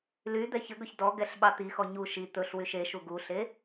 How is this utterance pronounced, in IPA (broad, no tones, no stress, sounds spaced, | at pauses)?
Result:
l y d̪ ɛ ç ə ɡ ɵ ç d ɔ ɡ ɛ ɬ ɓ ɑ t̪ i x ɔ ɲ u ʃ i t̪ ɵ ɬ w y ʃ e ʃ u ɡ u ɬ e